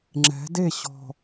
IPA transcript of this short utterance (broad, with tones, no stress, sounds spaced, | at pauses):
ŋ͡ǁ ɛ̤˨˦ d e˦˨ ɕ ɔ̤˨